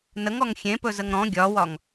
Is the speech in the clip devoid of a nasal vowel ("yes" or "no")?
no